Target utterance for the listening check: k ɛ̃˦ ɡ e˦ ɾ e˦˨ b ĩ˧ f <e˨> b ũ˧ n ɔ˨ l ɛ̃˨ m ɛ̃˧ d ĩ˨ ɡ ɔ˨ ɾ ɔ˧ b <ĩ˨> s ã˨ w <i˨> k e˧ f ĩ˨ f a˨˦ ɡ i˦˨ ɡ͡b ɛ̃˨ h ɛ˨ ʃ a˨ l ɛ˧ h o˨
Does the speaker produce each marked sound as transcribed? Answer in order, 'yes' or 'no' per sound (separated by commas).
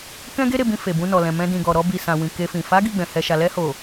yes, no, no